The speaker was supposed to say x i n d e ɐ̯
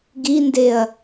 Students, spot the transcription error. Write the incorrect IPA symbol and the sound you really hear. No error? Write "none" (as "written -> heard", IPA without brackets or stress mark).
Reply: x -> ɡ